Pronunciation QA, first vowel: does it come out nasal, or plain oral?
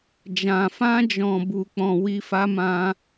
nasal